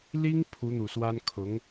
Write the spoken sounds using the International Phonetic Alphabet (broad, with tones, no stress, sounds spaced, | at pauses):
l i˥ ŋ pʰ u˧˥ n̪ u˨˩ s w a˥ n kʰ ʊ˧˥ ŋ